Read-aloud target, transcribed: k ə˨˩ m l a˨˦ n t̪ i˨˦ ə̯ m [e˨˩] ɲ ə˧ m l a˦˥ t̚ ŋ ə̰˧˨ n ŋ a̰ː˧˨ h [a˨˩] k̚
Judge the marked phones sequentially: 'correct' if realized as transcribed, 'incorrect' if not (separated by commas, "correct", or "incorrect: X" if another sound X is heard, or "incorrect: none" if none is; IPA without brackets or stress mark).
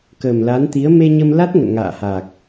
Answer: incorrect: e˧, correct